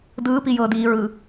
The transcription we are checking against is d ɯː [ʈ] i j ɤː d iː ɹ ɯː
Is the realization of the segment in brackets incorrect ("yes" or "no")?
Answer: yes